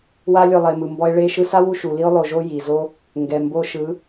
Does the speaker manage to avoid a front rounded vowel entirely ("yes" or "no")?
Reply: yes